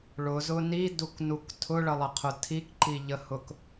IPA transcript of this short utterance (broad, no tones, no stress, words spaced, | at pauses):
ɭʊzʊ niduknuk tʰʊɭəlˠəqʰʊ tʰikǃiʎəhʊk